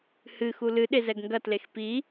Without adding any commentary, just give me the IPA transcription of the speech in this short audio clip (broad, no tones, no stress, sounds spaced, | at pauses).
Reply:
h ɨ x u l ɨ ɗ e z ɛ ɡ ŋ ɡ ɐ t l e x p i